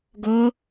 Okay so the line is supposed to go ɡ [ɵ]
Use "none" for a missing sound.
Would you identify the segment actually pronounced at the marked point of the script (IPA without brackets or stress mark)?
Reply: o